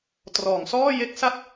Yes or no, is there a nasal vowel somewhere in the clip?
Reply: no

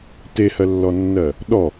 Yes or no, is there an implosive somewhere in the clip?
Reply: yes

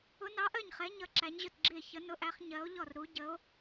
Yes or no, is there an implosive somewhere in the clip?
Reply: no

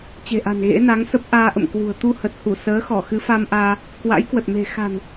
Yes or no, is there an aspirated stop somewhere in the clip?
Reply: no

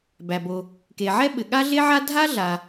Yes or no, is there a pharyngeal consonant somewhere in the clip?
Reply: yes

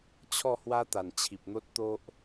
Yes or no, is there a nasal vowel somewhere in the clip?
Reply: no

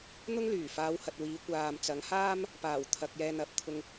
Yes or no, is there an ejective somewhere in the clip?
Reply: no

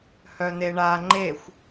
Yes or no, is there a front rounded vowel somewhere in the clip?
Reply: yes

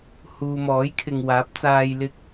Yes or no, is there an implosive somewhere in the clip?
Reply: no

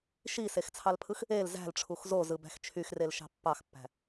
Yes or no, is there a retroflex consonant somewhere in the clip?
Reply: yes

